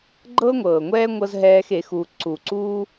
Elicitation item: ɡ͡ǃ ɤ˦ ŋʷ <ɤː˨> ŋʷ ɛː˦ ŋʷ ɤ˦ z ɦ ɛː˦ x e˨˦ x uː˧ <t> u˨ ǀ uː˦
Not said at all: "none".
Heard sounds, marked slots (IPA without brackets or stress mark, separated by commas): ɤː˨, ǀ